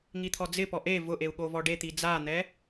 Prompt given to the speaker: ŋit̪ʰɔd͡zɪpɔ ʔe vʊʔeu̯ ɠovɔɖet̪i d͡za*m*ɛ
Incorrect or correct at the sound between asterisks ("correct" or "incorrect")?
incorrect